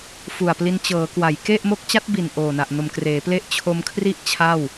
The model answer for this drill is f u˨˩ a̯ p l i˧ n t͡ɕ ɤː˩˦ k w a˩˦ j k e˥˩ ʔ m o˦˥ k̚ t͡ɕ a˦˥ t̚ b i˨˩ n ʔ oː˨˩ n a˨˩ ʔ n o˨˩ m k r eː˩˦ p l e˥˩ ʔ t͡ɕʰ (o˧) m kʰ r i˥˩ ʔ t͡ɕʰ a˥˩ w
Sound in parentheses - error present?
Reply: no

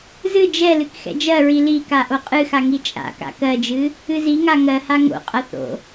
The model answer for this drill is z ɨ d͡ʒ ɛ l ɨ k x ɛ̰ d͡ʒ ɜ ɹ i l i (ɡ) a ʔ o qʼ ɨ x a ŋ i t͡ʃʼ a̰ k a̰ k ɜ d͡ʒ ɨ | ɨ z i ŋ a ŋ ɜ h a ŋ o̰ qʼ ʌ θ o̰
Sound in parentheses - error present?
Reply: yes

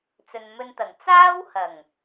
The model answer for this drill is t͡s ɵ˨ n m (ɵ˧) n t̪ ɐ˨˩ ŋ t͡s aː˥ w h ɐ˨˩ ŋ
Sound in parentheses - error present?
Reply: no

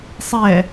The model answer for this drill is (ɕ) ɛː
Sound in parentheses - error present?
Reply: yes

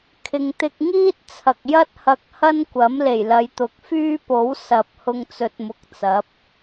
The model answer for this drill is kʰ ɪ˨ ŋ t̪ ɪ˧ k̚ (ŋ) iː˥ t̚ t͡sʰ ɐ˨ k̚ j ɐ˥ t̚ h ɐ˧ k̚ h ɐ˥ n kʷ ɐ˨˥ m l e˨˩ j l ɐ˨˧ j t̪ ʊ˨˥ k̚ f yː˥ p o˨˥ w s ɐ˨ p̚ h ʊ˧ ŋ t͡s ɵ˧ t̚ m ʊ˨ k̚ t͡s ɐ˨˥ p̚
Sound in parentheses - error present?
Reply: no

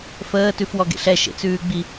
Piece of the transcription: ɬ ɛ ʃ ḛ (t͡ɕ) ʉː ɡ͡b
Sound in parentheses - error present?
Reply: yes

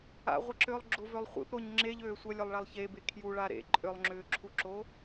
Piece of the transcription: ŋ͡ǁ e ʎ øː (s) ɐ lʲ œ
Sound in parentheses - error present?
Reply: yes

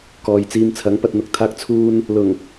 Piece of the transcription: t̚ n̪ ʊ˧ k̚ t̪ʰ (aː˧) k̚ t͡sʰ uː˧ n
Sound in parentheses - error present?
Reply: no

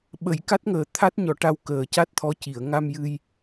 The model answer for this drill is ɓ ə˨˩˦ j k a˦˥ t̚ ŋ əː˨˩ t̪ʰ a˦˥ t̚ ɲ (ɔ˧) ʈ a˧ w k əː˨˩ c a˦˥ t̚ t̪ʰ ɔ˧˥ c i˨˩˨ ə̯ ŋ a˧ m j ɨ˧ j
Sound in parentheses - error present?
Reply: yes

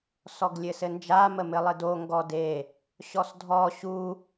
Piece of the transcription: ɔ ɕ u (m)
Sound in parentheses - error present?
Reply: yes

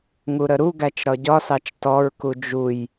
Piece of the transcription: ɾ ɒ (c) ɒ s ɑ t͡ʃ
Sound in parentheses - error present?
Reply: yes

